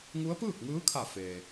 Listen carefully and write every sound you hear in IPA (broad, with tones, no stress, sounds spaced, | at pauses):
ŋ u˧˥ ə̯ p ɯː˥˨ k̚ ŋ ɯː˧˥ kʰ a˧˩ f eː˩